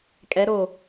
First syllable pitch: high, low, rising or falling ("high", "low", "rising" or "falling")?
rising